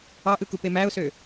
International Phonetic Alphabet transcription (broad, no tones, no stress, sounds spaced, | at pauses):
ɑ ʔ ɯ k u p e m æ ʊ̯ s ø